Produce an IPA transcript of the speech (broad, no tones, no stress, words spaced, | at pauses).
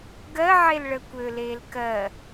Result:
ɡɜʕel ɭəːkʷøleːl kɜ